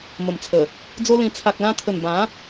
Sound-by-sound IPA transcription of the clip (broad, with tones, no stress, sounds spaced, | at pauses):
m ə˨˩ m t͡sʰ ə˨˩ | d͡z o˦ l ĩ˧ t͡sʰ a˨ k̚ l ã˧ t̪ʰ ə˨˩ n b ã˨˦